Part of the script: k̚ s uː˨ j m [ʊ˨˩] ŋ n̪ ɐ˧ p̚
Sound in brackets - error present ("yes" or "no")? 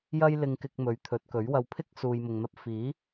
yes